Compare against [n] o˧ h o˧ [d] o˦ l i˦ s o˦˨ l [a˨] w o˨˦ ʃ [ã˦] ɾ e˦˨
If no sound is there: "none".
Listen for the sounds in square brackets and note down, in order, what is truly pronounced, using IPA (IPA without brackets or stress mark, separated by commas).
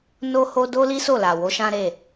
n, d, a˨, ã˦